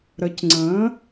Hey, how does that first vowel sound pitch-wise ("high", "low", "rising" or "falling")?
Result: rising